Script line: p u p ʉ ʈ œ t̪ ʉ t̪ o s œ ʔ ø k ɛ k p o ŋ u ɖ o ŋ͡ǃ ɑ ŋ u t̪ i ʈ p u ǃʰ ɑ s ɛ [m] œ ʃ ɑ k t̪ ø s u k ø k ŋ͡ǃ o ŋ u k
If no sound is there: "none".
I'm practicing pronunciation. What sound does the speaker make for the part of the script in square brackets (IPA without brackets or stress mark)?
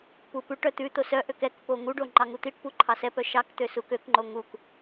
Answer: p